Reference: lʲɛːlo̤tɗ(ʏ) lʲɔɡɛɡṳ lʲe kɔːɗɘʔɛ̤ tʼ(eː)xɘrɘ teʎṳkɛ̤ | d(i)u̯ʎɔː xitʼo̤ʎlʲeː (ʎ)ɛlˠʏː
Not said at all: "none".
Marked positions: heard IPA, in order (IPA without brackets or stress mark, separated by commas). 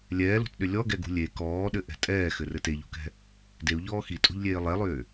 ʏ, ɛː, e, lˠ